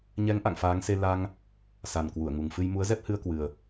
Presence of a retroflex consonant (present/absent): absent